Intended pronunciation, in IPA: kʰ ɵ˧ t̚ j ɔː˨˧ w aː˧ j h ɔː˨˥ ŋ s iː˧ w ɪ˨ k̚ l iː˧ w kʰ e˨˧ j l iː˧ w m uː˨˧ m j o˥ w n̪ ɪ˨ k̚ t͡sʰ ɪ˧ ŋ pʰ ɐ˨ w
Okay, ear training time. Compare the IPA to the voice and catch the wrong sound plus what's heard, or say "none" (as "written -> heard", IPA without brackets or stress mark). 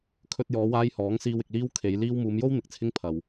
none